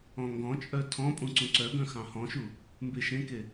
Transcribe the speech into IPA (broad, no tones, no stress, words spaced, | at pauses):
ɔ̃ŋɡɔ̃t͡ʃʼœ tʰɔ̃pʼũ ǀũǀœɡœ̃ xɑ̃hɔ̃ʃu | mbeʃẽke